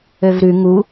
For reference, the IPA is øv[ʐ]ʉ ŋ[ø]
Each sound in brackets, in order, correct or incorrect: incorrect: ɾ, incorrect: u

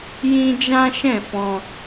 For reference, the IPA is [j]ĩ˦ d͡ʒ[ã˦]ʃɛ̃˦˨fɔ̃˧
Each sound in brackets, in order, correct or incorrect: correct, correct

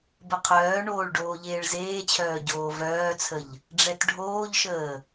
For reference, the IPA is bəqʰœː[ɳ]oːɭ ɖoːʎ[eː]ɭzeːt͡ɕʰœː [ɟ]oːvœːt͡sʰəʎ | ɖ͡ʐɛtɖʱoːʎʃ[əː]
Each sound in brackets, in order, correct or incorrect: correct, correct, correct, correct

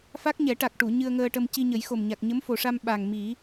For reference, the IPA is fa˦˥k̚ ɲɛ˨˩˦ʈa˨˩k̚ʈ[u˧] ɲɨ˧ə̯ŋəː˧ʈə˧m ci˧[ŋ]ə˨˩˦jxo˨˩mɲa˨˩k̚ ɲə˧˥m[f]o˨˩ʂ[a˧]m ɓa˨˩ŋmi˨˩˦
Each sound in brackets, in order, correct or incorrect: incorrect: u˨˩˨, incorrect: ɲ, correct, correct

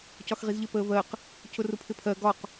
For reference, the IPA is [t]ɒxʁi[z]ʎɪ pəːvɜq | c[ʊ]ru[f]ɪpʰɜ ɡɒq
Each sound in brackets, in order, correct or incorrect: incorrect: c, correct, correct, incorrect: pʰ

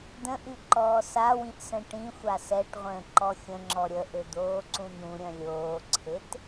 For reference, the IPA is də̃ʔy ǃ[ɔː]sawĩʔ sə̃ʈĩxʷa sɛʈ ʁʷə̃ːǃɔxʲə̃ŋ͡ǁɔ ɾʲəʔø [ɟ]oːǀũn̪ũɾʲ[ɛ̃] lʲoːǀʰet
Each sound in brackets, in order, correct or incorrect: correct, incorrect: d̪, incorrect: œ̃

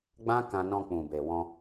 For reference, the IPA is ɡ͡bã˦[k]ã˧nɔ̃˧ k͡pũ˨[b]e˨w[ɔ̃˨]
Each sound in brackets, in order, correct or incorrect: correct, correct, incorrect: ɔ̃˧

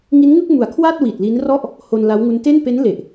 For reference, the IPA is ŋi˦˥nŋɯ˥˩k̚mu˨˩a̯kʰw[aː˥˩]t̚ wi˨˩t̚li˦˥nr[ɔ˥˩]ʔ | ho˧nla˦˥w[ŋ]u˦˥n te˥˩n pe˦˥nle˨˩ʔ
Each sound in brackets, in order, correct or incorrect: correct, correct, correct

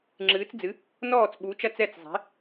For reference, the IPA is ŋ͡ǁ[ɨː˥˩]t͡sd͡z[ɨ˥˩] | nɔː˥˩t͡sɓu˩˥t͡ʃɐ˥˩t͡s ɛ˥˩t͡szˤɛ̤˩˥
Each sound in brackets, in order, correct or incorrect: incorrect: ɨː˩˥, incorrect: ɨ˩˥

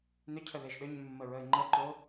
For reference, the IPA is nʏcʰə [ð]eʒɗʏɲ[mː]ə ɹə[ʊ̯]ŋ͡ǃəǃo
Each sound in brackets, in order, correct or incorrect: correct, correct, incorrect: ɪ̯

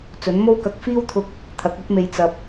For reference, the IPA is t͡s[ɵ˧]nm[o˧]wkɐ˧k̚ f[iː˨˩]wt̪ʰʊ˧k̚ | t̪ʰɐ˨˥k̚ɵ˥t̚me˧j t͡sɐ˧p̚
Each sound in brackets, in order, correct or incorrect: incorrect: ɵ˨˥, incorrect: o˥, incorrect: iː˥

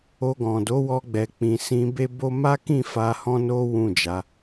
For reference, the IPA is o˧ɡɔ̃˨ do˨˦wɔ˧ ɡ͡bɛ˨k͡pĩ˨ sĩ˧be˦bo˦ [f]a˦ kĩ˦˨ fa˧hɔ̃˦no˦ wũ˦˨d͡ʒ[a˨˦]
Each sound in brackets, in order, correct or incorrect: incorrect: m, correct

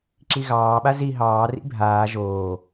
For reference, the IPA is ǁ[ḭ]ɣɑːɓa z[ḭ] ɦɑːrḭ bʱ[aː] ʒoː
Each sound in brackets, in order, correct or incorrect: incorrect: i, incorrect: i, correct

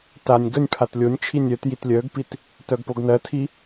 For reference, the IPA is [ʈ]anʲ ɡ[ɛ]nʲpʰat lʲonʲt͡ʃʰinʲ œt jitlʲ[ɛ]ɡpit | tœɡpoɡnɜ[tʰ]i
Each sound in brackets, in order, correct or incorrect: incorrect: t, incorrect: œ, incorrect: œ, correct

